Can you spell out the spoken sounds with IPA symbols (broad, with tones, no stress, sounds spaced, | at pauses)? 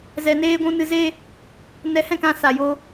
z ɛ˧ n eː˦ ɡʷ ũ˦ n ɨ˧ z e˦ | n ɛ˧ h ɛ̃˦˨ k ã˧ s a˨ j o˧